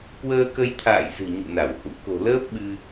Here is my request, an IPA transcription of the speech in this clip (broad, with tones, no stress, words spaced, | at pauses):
kwəː˧kə˧jt̪ʰa̰ː˧˨jzɨ̤˨˩ ɲṵ˧˨na˧˩whṵ˧˥ ko̤˨˩ləː˦˥p̚ ɓɨ˧